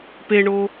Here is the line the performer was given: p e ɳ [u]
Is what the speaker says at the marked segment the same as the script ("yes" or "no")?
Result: no